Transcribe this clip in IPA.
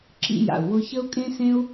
ǁ ḭ˥ j a̰˩ u̯ w ʊ˥ ç ə˥ u̯ kʼ ẽ˥ s ẽ˥ u̯

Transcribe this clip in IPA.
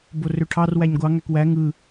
b o r ø ʈʰ ɑ r w æ ɲ ɡʷ ɑ ŋ æ k w æ ŋ ɯ

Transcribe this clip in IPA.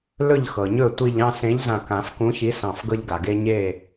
l ɵ˧˩ ʎ x ɤ˩ ɲ ɵ˧˩ tʷ i˧˩ ʎ ɑ̃˥˨ s ẽ˨˥ ʎ z ã˧˩ k ã˨˩˦ f k ũ˨˥ ç i˨˥ s ɑ̃˧˩ f ɡ ɤ˦ ʎ ɡ a˩ ɡ e˦ ɲ e˥˨

